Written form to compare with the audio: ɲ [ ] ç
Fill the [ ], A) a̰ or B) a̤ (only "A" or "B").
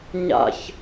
A